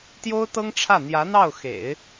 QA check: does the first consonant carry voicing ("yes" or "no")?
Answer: no